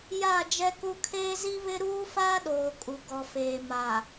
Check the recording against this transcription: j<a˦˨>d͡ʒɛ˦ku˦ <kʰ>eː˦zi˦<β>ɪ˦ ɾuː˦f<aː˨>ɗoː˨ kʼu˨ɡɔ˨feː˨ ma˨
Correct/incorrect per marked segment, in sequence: correct, correct, correct, incorrect: aː˦

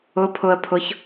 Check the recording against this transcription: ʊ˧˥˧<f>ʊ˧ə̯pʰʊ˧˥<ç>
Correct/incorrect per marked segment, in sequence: incorrect: pʰ, correct

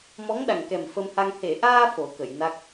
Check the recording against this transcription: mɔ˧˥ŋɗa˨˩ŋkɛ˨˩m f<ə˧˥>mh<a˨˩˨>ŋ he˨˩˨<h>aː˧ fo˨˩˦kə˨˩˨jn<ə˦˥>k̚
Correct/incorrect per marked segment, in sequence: incorrect: ə˧, incorrect: a˧, incorrect: ʔ, incorrect: a˦˥

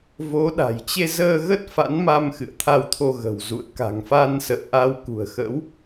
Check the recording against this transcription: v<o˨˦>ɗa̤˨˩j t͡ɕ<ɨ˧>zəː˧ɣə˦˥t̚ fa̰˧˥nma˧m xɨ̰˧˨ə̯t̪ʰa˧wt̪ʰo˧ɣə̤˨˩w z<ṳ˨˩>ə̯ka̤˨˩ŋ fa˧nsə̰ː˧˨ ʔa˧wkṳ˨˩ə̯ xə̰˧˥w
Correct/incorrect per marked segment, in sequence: correct, incorrect: e˧, incorrect: ṵ˧˨

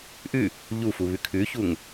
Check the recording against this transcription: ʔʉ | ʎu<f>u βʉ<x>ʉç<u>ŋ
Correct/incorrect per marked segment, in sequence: correct, incorrect: kʰ, correct

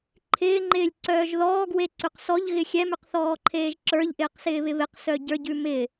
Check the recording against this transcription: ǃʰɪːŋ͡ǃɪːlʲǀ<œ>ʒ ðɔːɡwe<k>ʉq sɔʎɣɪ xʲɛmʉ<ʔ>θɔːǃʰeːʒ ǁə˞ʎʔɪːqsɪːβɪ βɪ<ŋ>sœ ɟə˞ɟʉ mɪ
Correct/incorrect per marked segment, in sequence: incorrect: œː, incorrect: ǀ, incorrect: q, incorrect: q

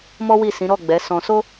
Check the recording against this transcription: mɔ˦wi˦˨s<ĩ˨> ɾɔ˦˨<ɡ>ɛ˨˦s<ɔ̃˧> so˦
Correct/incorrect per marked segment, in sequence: incorrect: ĩ˨˦, incorrect: ɡ͡b, correct

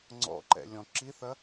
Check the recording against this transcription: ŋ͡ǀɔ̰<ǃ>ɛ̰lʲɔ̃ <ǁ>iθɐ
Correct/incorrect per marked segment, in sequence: correct, correct

